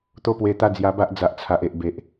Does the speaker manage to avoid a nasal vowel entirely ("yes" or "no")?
yes